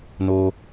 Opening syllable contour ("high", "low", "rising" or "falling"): high